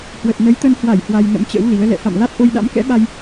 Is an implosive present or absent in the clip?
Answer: present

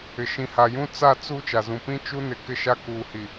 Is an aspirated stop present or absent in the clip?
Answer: absent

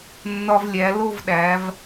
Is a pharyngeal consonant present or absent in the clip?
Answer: absent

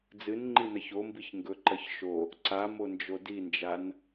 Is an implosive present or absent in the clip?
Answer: absent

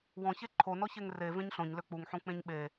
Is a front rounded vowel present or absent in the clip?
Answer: present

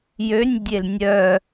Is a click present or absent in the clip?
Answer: absent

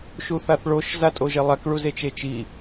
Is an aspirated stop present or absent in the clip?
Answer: absent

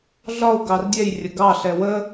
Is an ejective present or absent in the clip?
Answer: absent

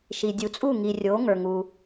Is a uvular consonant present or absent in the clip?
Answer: absent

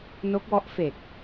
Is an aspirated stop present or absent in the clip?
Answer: absent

